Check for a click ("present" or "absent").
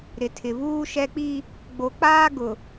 absent